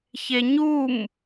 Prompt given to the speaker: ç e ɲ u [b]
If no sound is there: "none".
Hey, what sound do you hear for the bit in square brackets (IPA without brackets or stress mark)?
m